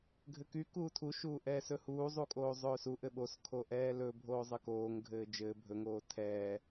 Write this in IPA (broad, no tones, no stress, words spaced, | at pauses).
ɡʱɘky kuːtʰu ʃuːʔɛːsɵhuː zˤukʼoːzˤɵːsuʔ ɘɓos kʰoʔɛːlɵ bʱoːzˤɘkoːŋ ɡʱɘːd͡ʒɘː bʱɵ ŋoːtʰɛː